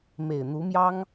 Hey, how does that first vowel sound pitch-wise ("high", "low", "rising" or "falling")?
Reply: low